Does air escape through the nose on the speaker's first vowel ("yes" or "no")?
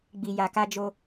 no